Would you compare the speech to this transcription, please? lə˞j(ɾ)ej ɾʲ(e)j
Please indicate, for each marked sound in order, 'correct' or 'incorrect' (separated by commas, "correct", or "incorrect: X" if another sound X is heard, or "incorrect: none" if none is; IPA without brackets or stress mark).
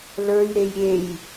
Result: correct, correct